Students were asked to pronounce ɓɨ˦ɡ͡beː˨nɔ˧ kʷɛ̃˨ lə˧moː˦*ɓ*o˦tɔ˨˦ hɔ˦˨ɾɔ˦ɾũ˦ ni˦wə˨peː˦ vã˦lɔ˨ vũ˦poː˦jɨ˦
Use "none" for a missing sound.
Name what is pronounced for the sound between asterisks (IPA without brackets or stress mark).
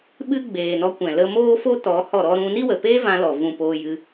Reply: f